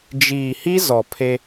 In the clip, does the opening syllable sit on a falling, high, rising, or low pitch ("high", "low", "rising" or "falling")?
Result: low